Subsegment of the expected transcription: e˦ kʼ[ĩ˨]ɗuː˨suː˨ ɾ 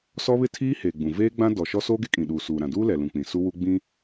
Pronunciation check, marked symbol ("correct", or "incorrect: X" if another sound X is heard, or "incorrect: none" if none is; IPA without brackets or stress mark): correct